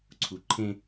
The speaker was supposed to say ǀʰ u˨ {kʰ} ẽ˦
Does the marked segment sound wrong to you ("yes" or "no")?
yes